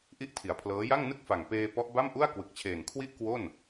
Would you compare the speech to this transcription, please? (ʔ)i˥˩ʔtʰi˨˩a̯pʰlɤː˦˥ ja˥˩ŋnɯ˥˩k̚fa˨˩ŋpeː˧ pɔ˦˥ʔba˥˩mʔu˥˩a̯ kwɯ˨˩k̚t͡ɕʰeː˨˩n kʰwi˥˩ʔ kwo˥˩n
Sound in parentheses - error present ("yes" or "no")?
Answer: no